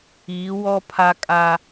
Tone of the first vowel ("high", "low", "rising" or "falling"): rising